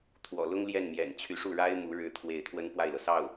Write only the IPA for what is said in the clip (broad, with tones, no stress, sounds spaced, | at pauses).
t̪ʰ w ɔ̰˨˩ l ʊ˥ ŋ l j ɛ˥˩ n m j ɛ̰˨˩ n t͡ɕʰ y˧˥ ʂ u˥˩ ɻ a˥ ɪ̯ m u˧˥ ɻ ɻ̩˥˧ t̪ʰ w e˥˩ ɪ̯ t̪ʰ w ə˥ n p w a˥˩ ɪ̯ l ɤ˩ s ɑ˥˩ ʊ̯